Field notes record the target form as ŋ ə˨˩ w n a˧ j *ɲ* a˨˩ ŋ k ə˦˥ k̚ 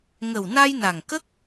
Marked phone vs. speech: incorrect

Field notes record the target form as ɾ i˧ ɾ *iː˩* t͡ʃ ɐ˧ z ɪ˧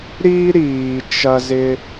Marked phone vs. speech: correct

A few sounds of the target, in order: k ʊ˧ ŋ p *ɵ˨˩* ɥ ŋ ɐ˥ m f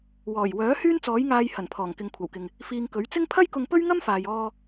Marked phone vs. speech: incorrect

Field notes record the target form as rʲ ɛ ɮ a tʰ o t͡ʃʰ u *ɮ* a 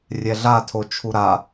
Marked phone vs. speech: incorrect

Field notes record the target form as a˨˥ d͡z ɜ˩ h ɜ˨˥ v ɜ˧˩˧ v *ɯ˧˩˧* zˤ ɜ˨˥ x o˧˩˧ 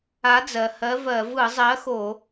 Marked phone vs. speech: correct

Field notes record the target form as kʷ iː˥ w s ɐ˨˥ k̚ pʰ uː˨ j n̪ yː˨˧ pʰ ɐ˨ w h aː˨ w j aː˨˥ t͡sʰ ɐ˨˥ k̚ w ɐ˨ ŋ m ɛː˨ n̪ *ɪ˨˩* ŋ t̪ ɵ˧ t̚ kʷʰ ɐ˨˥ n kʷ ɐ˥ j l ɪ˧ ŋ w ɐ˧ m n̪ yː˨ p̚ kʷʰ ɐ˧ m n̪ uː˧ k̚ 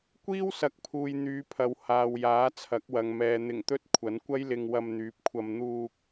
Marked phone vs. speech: correct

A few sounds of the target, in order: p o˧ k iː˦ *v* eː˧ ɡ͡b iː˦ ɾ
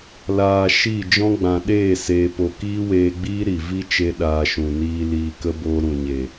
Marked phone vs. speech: incorrect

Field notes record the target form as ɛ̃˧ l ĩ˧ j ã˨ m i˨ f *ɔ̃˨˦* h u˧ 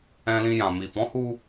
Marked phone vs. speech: correct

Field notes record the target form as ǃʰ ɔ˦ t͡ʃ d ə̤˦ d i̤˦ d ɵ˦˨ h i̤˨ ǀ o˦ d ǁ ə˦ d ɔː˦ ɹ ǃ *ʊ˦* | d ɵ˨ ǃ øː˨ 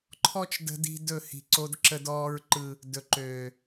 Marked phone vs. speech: incorrect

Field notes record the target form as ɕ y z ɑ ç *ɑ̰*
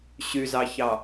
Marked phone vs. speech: incorrect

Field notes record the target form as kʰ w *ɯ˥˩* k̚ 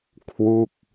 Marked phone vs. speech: incorrect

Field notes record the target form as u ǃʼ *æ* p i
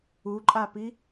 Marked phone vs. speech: incorrect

